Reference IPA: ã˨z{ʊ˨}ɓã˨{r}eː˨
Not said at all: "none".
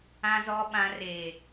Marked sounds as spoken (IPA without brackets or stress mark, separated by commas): ɔ˨, r